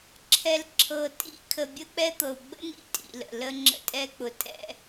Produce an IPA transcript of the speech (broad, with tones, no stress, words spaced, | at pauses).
ǁʰɛ˨lǁʰɤ˨ tʼḭ˦kʰə˨ bʲə˦k͡pɛ˦t̪ɤ˨u̯ ɡ͡bə̰˦nḭ˨ tʼḭ˨lə̰˨ lə˦ŋ͡ǁə̰˦tʼɛ˦k͡pʊ˨ tʼɛ̰˦